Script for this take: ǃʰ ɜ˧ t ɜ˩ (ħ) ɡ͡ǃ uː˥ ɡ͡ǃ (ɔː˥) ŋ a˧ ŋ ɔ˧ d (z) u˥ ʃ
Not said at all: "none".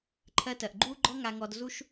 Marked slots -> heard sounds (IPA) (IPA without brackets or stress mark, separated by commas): ʔ, ɔ˥, z